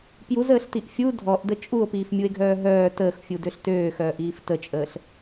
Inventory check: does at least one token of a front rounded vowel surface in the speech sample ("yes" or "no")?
yes